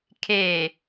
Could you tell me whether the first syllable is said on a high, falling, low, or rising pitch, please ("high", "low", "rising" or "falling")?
low